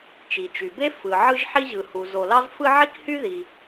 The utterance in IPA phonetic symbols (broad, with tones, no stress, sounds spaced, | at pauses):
t͡ʃ i˩ t͡ʃ y˩ b e˥ f ɯ˩ ʕ ɯ˥ ʒ ħ i˥ ʑ ɯ˩ h u˩ z o˩ l ɑ˥ z f ɯ˥ ʕ i˥ k h y˥ ð i˩